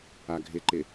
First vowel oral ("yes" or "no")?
yes